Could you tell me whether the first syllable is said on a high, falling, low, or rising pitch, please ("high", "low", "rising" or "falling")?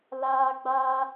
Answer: high